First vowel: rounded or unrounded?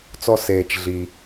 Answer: rounded